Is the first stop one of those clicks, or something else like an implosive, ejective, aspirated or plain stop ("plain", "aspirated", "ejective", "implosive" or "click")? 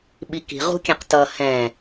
implosive